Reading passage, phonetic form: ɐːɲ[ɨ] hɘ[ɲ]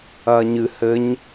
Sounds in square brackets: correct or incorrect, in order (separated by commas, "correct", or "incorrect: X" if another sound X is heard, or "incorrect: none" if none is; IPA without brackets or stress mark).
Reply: correct, correct